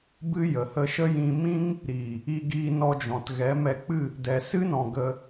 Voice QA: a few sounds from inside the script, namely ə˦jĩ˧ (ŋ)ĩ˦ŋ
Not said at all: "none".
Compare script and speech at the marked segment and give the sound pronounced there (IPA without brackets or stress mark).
m